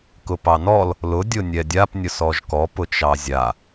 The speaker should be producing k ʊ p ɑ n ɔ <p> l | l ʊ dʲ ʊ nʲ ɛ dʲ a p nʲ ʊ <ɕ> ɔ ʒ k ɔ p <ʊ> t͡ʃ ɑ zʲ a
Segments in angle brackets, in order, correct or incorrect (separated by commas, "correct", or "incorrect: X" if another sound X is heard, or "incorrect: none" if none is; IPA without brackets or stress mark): incorrect: none, incorrect: s, correct